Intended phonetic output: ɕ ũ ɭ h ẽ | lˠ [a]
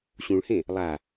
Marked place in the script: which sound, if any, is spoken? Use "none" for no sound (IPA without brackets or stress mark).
a